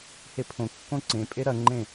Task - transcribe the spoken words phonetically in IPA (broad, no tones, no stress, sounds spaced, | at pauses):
h e pʰ õ kː õ ǀ ẽ pʼ e ɾ ɐ ŋ͡ǃ ẽ